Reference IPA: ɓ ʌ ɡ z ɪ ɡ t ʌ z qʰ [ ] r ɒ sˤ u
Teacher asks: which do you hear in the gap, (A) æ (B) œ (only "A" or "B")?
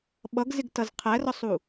A